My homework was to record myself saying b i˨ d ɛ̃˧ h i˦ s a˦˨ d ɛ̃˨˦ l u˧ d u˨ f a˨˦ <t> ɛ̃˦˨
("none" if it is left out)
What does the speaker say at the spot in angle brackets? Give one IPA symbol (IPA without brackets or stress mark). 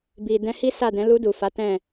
t